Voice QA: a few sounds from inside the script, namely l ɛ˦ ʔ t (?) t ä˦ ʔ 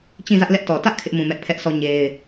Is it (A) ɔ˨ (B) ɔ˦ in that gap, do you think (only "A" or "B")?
A